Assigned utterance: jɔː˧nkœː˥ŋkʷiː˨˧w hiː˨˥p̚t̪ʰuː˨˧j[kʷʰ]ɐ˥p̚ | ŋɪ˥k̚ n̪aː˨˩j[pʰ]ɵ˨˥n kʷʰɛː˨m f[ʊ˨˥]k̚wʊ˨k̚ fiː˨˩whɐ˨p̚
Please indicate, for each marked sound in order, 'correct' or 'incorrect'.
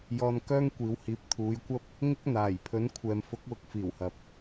incorrect: kʷ, correct, correct

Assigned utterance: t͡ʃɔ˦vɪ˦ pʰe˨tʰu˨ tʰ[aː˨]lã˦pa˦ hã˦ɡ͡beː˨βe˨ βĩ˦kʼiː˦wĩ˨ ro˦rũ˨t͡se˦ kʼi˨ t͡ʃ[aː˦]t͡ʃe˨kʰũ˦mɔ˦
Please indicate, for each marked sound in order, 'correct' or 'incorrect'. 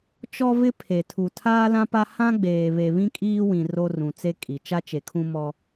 incorrect: aː˦, incorrect: a˦

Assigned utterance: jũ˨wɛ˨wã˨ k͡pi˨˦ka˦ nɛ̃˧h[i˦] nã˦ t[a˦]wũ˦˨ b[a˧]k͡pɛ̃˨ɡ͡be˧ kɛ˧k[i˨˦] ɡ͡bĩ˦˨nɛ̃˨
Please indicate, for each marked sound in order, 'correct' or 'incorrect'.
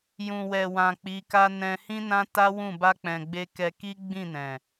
incorrect: ĩ˦, correct, correct, incorrect: i˦

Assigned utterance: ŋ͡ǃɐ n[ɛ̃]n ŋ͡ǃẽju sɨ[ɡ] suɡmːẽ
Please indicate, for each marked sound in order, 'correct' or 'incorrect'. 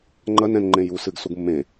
correct, correct

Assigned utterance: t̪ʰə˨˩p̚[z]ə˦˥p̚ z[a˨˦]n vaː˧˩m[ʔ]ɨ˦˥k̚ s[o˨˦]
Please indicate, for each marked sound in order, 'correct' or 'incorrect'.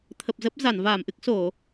correct, incorrect: a˧˩, correct, incorrect: o˧˩˨

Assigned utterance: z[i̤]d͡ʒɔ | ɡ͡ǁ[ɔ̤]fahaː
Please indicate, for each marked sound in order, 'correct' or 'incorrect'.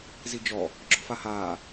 incorrect: i, correct

